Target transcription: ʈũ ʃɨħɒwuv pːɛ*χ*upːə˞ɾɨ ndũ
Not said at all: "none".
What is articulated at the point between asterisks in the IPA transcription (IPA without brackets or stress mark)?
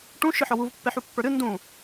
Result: ħ